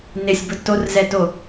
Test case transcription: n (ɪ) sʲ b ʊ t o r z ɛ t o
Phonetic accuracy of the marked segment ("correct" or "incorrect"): correct